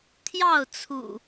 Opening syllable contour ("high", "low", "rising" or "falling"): falling